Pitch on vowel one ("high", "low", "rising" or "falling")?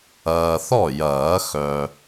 low